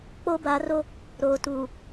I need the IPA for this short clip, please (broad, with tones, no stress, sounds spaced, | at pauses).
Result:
k͡p o˦ b a˨˦ r o˦ | ɾ oː˨ t uː˨